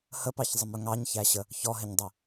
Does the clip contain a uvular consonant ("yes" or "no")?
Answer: no